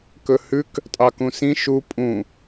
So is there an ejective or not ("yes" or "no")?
yes